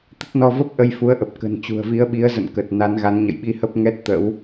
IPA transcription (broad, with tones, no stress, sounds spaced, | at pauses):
t̪ ə˦˥ t̚ n ɔ˧ v ə˦˥ p̚ ʔ ə˧ j f u˨˦ ə̯ ʔ ə˨˩ p̚ k ə̤˨˩ n t͡ɕ ṳ˨˩ ə̯ v i˨˦ ə̯ ɓ i˨˦ ə̯ z ə̰˧˨ n k ə˨˩ t̚ n a˨˦ n ɣ a˨˦ n ɲ ə̰˧˨ j ɓ i˧ h ə˦˥ p̚ ŋ ɛ˦˥ t̚ t̪ ə̰˧˥ w